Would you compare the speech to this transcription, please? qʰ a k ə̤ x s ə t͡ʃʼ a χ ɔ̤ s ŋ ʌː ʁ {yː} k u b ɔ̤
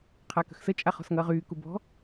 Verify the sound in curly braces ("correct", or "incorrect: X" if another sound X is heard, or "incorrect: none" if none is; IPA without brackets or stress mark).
correct